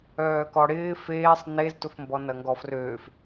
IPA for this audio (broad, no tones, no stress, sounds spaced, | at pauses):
œː k ɔ ɽ ɪː f eː sˤ n e z t ʊ f m b ɔ n ɐ ŋ ɡ ɔ f r øː f